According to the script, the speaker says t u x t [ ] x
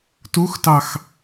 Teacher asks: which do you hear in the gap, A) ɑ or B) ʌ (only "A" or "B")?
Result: A